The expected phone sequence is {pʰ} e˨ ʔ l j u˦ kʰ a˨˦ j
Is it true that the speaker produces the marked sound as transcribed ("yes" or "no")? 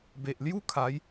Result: no